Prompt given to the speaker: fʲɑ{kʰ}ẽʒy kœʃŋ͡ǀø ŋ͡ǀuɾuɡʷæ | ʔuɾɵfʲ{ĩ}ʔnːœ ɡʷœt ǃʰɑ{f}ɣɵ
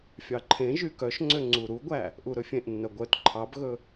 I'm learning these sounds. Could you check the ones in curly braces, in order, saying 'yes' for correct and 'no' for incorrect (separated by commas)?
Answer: no, no, no